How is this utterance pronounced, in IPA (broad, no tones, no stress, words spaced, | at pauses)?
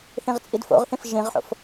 θĩʁt͡sʼidfo̰ʁθĩf ʒĩʁħo̰f